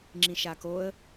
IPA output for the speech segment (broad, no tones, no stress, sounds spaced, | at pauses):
ŋ͡ǁ ĩ ʃ a k o ə̯